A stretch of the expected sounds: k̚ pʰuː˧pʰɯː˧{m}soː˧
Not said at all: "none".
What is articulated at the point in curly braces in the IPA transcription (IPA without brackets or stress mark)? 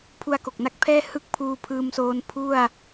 m